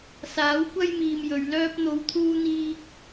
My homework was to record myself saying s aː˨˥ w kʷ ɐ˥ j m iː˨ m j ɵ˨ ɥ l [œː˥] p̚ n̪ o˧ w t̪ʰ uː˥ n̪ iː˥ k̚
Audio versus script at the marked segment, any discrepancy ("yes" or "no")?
no